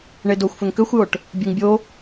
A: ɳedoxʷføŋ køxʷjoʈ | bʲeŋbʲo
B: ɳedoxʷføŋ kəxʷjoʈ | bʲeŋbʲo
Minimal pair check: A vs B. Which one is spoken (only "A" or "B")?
A